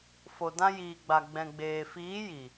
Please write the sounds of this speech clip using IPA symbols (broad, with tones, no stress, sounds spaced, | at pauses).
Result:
f o˨ d ã˧ j iː˨ ɡ͡b a˨ ɡ͡b ɛ̃˨ ɡ͡b eː˨ f iː˨˦ j i˨